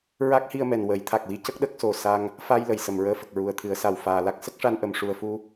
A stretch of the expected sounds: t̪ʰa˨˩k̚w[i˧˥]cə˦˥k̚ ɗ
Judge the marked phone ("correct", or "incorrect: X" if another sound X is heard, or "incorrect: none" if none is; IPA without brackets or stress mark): correct